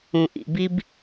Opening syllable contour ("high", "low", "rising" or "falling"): low